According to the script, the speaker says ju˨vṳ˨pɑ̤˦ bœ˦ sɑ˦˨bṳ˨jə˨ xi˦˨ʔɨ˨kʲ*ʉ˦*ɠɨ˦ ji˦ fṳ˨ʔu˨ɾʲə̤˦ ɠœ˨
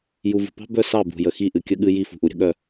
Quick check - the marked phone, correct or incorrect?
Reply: incorrect